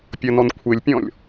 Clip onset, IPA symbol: pʲ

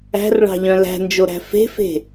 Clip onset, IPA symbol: æ̤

